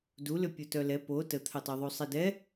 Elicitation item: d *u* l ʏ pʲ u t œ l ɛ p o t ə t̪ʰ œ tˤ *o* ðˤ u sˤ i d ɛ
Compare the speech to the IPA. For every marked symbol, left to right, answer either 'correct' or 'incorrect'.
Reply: correct, correct

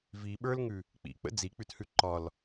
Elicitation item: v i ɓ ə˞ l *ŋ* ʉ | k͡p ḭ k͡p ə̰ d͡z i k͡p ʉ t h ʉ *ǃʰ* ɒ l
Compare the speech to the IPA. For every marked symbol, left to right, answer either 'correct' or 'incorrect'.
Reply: correct, incorrect

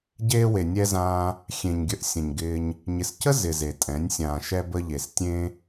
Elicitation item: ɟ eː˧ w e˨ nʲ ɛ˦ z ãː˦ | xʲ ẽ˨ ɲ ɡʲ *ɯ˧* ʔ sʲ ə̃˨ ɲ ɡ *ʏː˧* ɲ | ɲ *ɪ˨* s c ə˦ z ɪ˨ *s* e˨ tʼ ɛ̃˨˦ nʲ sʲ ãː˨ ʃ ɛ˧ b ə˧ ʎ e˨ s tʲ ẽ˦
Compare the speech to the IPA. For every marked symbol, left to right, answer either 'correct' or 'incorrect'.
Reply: incorrect, incorrect, correct, incorrect

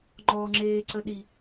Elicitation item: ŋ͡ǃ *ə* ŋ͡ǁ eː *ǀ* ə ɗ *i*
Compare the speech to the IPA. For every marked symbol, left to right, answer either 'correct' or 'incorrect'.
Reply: incorrect, correct, correct

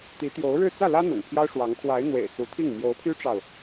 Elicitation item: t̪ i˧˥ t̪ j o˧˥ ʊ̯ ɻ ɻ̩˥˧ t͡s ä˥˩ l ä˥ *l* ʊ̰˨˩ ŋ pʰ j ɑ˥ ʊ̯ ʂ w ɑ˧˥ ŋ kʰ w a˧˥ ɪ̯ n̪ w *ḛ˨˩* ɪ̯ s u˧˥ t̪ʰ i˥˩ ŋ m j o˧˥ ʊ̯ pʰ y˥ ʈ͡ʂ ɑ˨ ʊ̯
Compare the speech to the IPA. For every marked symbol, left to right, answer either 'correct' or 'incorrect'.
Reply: incorrect, correct

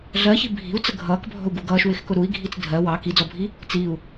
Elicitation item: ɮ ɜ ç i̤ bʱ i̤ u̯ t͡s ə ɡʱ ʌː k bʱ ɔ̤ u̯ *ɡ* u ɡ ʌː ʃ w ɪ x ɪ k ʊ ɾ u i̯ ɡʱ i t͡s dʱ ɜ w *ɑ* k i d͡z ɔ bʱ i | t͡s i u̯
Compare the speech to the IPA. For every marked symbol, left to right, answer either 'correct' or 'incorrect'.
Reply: correct, correct

